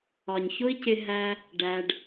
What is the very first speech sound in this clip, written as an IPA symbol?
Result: ɒ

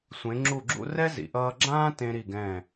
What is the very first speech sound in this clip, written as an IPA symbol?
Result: sʷ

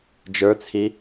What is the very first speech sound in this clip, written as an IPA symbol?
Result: d͡ʒ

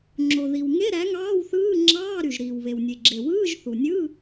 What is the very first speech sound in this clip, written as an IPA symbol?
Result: ŋ͡ǁ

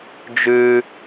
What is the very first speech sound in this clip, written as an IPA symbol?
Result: d͡ʒ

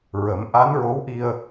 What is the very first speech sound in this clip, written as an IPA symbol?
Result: ɹ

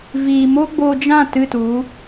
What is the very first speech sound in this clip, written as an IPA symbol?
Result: v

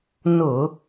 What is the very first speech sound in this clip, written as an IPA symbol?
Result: n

